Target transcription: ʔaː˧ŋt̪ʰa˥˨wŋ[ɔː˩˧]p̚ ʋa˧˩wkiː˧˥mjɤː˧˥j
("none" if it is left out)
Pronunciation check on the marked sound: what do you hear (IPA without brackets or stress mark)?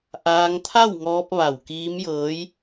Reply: ɔː˧